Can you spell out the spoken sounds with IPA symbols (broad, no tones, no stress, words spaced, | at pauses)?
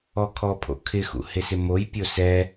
ɔkʰɔpʰo̰kʰɪ xṵhɪsɪmoj pʲosɛ